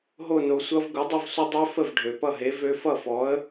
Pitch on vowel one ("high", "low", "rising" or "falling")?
falling